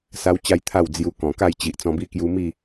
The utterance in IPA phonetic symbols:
s a˦ w t͡ɕ a˦ j t̪ʰ a˥˧ w d͡z j u˧ k ɔ̃˨˩ k a˥˧ j t͡ɕ i˨ ʔ t͡s ɔ̃˧ b i˦ k j u˧ m i˥˧

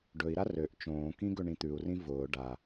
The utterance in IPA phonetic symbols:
ɖ ɵ i̯ ɾ a r ø ʔ t͡ʃ õː k ĩ ɡ ɵ ɳ ĩ t̪ ʉ u̯ r ĩ v ʊː ɖ a

